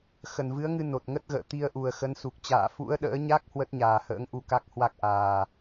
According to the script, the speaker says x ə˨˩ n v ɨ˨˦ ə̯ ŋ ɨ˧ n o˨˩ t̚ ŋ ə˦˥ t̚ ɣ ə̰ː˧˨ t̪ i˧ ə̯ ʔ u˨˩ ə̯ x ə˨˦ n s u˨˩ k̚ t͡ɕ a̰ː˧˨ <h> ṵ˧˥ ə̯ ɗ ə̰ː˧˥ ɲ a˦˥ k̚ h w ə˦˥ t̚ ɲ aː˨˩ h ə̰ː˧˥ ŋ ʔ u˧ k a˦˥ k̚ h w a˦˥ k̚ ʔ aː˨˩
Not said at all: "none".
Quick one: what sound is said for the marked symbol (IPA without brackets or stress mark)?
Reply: f